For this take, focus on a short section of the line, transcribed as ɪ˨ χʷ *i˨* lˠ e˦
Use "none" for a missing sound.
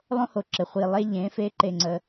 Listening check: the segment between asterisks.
i˨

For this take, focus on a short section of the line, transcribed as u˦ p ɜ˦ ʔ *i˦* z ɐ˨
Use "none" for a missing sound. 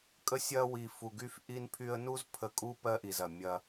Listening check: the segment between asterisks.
i˨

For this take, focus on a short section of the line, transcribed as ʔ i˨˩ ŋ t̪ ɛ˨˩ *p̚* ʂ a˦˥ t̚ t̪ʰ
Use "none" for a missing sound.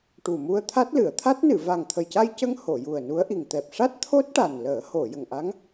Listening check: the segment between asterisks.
p̚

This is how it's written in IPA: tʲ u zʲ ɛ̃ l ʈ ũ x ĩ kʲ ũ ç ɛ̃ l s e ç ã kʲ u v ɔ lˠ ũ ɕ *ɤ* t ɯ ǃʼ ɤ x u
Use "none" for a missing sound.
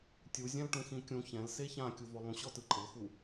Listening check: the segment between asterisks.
ɔ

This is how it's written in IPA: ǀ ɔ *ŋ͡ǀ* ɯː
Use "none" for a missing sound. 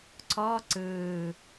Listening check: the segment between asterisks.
ǀ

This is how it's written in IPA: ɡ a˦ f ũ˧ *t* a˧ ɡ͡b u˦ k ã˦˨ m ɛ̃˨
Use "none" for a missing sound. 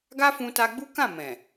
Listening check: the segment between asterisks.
t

